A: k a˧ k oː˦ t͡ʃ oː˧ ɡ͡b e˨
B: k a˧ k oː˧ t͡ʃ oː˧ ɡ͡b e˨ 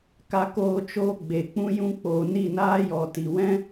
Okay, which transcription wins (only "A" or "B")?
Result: B